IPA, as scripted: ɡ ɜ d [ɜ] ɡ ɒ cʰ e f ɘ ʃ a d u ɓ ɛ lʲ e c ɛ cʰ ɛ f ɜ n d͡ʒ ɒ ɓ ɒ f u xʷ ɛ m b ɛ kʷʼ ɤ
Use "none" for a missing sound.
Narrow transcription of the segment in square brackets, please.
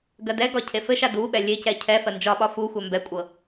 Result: ɛ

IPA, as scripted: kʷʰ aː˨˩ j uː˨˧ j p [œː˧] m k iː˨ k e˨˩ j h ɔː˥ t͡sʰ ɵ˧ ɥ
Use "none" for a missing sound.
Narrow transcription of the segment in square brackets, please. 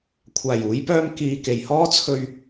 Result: œː˧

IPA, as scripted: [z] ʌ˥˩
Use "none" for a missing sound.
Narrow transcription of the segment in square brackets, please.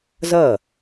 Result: z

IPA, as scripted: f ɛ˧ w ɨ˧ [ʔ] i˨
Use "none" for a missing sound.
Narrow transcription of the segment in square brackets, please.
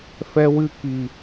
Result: k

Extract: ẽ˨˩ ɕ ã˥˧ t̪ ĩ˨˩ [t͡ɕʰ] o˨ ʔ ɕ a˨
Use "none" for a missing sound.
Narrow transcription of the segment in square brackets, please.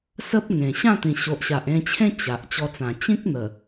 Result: ɕ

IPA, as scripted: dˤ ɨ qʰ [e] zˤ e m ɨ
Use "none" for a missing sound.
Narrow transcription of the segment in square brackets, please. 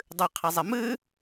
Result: ɛ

